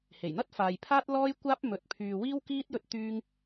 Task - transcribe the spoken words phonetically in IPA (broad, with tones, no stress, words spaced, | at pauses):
he˨˩jn̪ɐ˥t̚faː˨jpʰaː˥t̚ lɔː˥jkʷaː˥p̚ mɵ˧t̚pʰyː˧ wiː˥wkiː˥t̚ jɵ˥t̚t̪yː˥ŋ